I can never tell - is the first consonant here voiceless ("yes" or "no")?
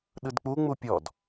no